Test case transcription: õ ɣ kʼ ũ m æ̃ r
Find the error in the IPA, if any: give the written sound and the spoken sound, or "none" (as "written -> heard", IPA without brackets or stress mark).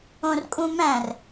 ɣ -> r